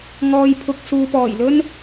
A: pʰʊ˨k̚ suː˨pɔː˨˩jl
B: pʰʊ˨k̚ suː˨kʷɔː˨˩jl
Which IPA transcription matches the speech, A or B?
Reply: A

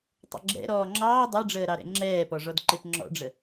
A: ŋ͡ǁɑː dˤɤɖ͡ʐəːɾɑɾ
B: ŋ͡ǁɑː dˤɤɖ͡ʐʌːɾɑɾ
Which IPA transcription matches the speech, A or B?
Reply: A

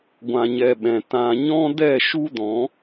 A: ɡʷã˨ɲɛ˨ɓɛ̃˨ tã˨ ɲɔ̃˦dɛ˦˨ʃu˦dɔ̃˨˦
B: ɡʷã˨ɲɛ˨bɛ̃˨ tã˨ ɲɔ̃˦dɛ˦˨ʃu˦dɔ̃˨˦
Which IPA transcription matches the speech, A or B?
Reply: A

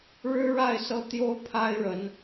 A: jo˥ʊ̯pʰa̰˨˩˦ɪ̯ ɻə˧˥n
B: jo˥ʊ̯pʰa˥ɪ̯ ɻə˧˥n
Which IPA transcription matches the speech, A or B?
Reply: B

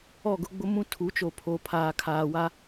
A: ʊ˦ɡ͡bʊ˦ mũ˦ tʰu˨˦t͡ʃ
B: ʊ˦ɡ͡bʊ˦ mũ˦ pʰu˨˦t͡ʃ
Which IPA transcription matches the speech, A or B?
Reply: A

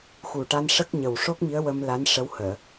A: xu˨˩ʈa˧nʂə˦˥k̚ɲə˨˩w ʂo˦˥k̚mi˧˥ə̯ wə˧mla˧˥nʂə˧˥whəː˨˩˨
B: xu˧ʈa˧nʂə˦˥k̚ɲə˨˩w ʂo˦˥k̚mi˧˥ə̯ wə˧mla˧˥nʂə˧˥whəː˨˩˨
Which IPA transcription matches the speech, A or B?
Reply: A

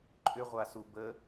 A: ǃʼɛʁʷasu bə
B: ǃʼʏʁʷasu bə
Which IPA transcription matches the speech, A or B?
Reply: B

